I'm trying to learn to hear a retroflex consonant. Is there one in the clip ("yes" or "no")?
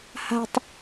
no